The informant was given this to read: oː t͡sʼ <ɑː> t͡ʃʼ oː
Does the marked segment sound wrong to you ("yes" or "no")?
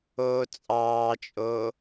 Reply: no